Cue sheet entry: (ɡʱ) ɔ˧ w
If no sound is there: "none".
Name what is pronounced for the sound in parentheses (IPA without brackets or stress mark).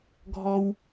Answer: ɡʱ